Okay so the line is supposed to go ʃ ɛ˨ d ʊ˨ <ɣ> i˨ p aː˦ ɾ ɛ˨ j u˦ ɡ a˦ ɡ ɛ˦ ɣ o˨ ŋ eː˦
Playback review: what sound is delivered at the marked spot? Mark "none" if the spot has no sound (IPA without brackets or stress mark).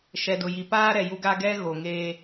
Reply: j